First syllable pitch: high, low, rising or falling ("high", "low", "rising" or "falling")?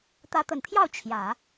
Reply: rising